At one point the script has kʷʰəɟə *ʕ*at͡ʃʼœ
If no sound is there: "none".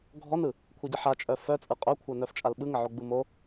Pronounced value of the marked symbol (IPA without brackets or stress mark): ħ